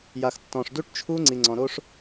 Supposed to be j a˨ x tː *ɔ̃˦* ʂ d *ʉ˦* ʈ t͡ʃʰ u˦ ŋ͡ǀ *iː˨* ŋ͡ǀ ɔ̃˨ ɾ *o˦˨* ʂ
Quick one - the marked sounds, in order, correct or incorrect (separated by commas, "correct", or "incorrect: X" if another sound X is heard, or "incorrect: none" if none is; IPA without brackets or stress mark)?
incorrect: ɔ̃˨, incorrect: u˦, incorrect: i˨, incorrect: o˦